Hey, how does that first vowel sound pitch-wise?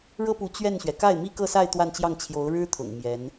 high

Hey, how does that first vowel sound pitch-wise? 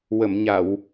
low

